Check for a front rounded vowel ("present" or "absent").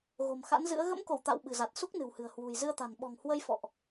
absent